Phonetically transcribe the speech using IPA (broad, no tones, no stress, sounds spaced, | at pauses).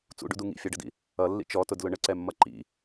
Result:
t͡s ṵ ɖ ṵ d u ŋ ḭ fʲ ɑ ɖ ə d ḭ | ʌ lː ḭ t͡ʃ ɔ t ʊ d l ʊ ɳ ə ǀ ɛ mː ʌ ǃ ḭ